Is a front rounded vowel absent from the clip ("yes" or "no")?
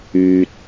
no